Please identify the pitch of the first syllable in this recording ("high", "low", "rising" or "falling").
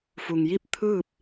low